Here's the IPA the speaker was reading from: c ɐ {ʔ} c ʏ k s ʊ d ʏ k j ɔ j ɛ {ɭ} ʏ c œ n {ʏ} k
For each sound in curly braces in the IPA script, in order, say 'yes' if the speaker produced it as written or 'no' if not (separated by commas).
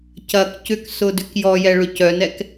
no, yes, no